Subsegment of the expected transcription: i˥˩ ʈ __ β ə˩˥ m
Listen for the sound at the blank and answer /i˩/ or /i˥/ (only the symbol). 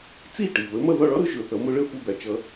i˩